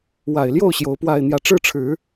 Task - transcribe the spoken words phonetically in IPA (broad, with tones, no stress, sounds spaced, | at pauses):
w a˨˩ ɪ̯ l j o˥˩ ʊ̯ ɕ j o˧˥ ʊ̯ p w a˥˧ ɪ̯ n̪ j ä˥˩ ʈ͡ʂ ɻ̩˥ ʈ͡ʂʰ ɻ̩˨˩˦